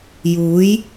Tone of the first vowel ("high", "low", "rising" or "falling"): rising